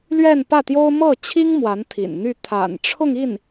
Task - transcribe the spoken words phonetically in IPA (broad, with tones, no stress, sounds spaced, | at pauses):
l ɥ ɛ˥˧ n p ä˥˩ t̪ j o˥ ʊ̯ m ɤ˥˩ t͡ɕʰ i˥ ŋ m w a˧˥ n t̪ʰ ḭ˨˩ n n̪ y˥˩ t̪ʰ a̰˨˩ n ʈ͡ʂʰ ʊ˥˧ ŋ i˥˩ n